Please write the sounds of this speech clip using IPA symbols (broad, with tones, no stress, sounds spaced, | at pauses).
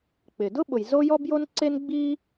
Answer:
k͡p ɪ˩ d ʊ˥ ɓ ʊ˩ j z o˥ j ɔ˥ b j o˥ n ǀ e˥ n ɡ͡b iː˥